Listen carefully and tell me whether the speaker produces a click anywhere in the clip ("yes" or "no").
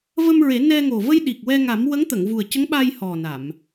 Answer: no